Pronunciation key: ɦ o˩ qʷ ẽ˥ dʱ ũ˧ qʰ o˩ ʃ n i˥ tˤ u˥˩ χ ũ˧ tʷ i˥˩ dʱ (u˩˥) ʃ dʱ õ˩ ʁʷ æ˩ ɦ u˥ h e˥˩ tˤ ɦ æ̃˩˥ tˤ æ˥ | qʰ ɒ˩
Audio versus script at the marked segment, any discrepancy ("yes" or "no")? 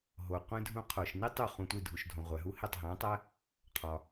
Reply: yes